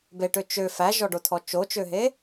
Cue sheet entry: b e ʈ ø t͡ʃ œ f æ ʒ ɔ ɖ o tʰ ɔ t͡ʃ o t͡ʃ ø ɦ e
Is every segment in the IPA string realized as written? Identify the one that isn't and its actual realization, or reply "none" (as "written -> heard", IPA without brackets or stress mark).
œ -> ø